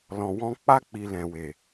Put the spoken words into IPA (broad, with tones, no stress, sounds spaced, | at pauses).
l ɔ̃˧ w ɔ̃˦ k͡p a˦ k͡p i˧ l ɛ̃˨ w e˨